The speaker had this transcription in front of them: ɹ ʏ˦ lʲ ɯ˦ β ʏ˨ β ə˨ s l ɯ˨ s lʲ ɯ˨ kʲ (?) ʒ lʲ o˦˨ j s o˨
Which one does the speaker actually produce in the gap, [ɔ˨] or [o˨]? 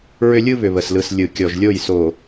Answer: ɔ˨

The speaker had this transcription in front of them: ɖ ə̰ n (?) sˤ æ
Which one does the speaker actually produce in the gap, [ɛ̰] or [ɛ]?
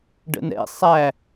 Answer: ɛ̰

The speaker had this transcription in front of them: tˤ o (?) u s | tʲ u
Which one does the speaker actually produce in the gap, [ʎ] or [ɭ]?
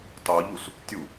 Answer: ʎ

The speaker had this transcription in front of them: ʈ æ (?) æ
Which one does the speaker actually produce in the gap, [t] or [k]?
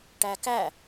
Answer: k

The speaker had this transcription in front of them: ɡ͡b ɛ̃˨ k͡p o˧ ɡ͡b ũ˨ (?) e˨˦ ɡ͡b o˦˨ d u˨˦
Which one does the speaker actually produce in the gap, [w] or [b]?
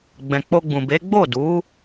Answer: b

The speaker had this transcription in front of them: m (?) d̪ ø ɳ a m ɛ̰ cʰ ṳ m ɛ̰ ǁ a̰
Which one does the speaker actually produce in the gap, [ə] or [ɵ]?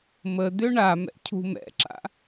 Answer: ə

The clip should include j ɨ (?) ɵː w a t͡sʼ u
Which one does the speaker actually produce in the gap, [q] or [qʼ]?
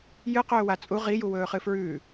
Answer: q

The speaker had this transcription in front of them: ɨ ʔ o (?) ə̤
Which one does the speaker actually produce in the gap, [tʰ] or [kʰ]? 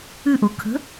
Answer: kʰ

